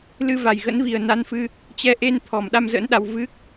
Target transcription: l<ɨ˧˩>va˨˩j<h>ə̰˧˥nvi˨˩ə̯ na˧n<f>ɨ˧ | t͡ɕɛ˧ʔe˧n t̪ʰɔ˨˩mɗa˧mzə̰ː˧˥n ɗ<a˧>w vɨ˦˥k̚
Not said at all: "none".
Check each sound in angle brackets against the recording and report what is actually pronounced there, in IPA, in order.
ɨ˧, ɣ, f, a˧

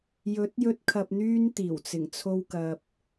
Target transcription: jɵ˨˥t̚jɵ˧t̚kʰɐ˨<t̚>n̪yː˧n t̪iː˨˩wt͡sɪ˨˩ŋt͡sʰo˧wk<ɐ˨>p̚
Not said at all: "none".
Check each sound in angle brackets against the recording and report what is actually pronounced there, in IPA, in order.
p̚, ɐ˨

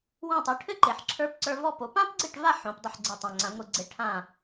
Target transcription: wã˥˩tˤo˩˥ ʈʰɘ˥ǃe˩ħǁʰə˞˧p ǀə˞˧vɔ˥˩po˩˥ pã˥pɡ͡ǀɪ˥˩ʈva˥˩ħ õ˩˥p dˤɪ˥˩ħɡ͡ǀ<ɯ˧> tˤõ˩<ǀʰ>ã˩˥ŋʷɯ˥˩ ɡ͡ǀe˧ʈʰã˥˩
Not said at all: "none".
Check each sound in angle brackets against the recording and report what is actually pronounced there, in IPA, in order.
ɯ˧, ŋ͡ǀ

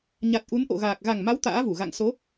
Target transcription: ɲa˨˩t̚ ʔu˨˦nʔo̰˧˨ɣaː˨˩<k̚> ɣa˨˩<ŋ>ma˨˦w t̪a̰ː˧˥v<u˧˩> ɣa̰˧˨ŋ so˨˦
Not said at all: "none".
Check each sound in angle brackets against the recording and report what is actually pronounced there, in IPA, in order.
k̚, ŋ, u˧˩

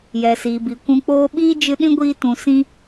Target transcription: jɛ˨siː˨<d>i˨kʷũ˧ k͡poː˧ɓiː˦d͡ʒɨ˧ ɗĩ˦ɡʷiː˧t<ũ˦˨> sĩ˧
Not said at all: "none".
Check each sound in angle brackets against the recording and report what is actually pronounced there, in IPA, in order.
b, ũ˨

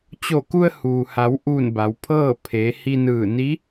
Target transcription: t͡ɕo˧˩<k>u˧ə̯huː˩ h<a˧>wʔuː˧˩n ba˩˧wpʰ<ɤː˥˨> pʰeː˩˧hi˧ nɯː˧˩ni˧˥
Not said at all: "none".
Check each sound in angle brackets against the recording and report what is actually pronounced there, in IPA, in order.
k, a˩˧, ɤː˥˨

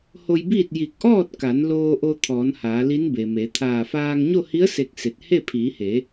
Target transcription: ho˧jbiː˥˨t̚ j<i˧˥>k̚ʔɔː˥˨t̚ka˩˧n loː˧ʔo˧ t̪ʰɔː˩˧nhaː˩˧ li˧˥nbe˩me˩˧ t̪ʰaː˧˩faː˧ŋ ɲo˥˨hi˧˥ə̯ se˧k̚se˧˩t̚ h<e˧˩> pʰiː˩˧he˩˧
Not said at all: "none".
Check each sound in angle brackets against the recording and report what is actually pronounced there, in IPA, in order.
i˧˩, e˥˨

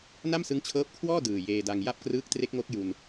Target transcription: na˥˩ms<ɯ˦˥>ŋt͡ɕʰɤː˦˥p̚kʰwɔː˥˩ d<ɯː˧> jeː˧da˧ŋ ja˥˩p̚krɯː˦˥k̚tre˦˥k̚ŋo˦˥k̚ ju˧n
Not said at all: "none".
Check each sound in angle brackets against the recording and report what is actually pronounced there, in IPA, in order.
ɯ˦˥, ɯː˨˩

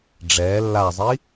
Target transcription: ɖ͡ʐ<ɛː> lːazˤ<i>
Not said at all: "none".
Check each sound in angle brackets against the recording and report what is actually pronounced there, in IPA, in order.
ɛː, i

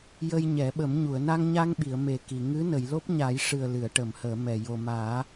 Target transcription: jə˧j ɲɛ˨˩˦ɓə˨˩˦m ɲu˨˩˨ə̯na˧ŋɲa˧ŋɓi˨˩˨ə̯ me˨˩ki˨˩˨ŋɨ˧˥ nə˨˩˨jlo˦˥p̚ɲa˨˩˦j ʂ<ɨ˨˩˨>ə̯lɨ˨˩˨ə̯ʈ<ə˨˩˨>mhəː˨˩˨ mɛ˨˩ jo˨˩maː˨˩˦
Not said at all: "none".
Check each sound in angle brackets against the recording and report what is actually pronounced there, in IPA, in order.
ɨ˨˩, ə˨˩˨

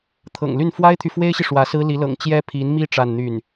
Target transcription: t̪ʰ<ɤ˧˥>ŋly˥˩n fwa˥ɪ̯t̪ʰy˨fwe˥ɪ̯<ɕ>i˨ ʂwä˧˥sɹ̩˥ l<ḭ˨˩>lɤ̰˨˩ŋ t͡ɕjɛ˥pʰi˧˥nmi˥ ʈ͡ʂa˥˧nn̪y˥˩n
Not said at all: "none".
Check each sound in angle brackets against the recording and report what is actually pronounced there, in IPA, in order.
ɤ̰˨˩, ɕ, i˧˥

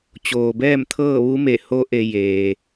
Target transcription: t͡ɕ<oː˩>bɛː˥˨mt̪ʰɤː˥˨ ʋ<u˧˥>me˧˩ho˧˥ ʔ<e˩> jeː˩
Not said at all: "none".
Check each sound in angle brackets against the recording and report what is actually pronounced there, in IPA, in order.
oː˩, u˧˥, e˧

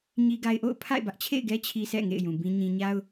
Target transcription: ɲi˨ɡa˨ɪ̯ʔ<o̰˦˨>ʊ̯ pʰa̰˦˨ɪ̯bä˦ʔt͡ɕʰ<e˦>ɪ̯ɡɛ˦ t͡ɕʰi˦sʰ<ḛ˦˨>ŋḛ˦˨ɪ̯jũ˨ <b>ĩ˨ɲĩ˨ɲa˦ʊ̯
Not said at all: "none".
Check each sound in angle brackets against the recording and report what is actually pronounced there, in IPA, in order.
o̰˦˨, ḛ˦˨, ɛ̰˦˨, b

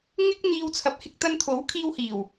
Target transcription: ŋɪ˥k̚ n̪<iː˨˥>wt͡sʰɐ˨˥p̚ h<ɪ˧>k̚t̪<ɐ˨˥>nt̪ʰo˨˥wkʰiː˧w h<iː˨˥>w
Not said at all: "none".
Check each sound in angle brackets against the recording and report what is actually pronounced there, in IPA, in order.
iː˧, ɪ˧, ɐ˧, iː˨˩

